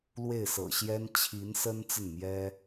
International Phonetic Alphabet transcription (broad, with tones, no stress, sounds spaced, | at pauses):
l w e˥˩ ɪ̯ s ɤ̰˨˩ ɕ j ɛ˥ n t͡ɕʰ i˧˥ n s ə˥ n t͡s ə˥˩ n m j ɛ˥